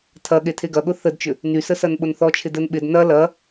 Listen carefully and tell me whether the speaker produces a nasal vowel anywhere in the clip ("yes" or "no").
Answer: no